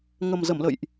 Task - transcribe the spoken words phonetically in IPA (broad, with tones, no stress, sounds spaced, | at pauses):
ŋ ə˨˩ m z ə˧˩ m l ə̰˧˨ j ʔ